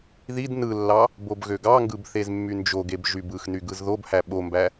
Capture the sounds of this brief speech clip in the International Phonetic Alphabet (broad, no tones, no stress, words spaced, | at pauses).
ðid nɯlːɑ | bobɣøɡɑŋɡɯb θezmːynd͡ʒoɡeb ʒybɯxny ɡɯzðobhæ ɓombæ